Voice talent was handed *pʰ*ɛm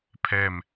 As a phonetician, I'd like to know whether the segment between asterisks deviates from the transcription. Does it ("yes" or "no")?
no